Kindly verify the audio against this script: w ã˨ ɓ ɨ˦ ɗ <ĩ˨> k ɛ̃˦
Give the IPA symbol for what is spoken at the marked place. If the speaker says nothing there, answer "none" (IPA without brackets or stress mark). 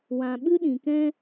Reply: ĩ˨